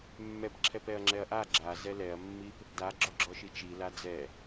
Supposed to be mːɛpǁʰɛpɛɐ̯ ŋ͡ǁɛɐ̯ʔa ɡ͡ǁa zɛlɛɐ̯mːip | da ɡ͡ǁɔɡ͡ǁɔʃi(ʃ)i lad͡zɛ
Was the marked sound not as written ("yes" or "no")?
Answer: yes